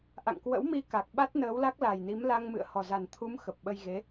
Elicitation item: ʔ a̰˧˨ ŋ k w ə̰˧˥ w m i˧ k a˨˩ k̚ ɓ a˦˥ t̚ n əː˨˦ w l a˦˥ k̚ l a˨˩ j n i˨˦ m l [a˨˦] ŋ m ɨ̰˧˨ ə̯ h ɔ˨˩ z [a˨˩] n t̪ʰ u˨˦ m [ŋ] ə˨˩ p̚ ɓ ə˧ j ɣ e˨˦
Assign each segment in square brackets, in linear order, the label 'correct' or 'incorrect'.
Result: incorrect: a˧, correct, incorrect: x

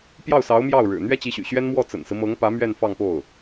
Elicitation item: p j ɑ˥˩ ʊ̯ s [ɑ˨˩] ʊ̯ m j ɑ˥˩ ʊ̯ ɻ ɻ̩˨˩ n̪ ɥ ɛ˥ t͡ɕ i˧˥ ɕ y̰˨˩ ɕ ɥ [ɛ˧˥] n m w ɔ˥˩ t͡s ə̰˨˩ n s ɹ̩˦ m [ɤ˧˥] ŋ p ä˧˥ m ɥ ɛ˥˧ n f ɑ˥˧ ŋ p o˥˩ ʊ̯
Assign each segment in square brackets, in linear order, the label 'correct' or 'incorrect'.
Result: incorrect: ɑ˧˥, incorrect: ɛ˥, correct

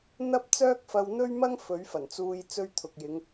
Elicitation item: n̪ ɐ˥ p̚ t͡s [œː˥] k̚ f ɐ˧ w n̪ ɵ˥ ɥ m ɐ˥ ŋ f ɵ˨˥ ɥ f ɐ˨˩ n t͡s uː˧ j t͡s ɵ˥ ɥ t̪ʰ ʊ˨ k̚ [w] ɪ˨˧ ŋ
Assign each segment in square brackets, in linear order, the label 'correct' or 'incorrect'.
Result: correct, incorrect: j

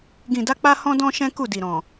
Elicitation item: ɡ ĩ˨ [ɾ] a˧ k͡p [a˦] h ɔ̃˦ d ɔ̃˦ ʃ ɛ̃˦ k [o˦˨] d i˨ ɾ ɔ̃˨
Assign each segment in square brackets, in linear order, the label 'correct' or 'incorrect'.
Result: incorrect: d, correct, incorrect: u˦˨

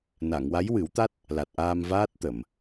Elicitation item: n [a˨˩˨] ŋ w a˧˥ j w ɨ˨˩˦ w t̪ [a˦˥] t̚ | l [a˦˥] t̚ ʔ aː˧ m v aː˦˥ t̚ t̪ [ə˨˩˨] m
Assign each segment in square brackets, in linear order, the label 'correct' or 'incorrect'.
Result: correct, correct, incorrect: a˨˩, correct

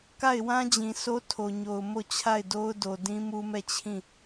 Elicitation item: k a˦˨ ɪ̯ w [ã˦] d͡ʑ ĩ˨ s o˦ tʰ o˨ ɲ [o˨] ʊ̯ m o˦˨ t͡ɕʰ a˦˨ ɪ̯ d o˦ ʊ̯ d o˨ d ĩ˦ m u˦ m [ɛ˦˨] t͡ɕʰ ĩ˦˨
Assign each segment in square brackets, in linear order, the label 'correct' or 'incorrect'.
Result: correct, correct, correct

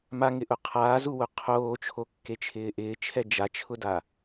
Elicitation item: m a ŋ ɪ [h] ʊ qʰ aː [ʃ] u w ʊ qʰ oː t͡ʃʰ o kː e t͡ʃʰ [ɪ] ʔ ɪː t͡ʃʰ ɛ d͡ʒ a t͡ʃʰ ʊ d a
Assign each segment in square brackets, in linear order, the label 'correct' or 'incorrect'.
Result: incorrect: ʔ, incorrect: z, incorrect: ɪː

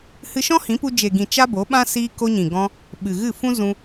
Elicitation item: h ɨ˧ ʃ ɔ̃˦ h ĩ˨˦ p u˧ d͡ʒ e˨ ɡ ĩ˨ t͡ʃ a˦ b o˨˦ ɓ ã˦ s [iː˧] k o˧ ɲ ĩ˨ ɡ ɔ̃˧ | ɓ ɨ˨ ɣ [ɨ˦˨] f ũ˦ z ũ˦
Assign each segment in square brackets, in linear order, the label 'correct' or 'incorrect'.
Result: correct, correct

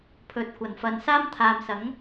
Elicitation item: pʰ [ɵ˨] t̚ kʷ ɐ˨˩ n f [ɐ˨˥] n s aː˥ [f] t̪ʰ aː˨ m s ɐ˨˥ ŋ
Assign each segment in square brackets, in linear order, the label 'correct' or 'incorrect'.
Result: correct, incorrect: ɐ˨, incorrect: m

